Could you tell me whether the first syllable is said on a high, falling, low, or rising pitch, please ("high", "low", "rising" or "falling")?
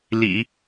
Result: low